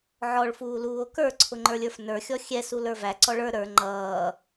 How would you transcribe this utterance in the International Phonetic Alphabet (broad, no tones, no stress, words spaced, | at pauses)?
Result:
ʕɔɭ fuːluːo̯kə˞ ǀʰʊŋ͡ǃə˞lʲə˞fnə˞ xʲɔxʲɛ sulə˞væ ǀɔɭə˞ ɾə˞ ŋ͡ǃʌː